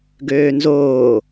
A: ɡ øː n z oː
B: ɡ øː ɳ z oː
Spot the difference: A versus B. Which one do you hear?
A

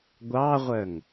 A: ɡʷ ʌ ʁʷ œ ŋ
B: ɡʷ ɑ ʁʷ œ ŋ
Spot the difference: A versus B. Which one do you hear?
B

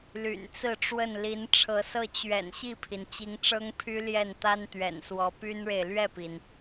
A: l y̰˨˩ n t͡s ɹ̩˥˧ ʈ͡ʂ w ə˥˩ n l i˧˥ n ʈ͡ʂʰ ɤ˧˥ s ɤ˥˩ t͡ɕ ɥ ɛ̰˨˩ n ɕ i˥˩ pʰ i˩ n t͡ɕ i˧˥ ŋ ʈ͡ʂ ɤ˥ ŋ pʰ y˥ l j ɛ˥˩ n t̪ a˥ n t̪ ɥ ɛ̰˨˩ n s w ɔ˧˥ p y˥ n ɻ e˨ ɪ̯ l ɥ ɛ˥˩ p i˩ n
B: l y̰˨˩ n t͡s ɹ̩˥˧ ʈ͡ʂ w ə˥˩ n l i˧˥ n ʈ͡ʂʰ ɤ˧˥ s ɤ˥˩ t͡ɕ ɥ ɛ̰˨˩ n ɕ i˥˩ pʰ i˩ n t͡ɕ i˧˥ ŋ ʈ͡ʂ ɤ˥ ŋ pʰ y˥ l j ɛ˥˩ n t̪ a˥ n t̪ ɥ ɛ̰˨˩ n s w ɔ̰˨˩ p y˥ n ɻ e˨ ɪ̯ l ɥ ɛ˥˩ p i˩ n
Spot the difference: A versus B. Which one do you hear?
A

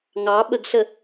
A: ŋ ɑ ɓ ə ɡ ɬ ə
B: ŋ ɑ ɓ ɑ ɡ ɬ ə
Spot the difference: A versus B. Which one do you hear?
A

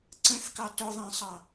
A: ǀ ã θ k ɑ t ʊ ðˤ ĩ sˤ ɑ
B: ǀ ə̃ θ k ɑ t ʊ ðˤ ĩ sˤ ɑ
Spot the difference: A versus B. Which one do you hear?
B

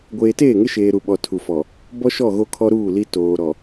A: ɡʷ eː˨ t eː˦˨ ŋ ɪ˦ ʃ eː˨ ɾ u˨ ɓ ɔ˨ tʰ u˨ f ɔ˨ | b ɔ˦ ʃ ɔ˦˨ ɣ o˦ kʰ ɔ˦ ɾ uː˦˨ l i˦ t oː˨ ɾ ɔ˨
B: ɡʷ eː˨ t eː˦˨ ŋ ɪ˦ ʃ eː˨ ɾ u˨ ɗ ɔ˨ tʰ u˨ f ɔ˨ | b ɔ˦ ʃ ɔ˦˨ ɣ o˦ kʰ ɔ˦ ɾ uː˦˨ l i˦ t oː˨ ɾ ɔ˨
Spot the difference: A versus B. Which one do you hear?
A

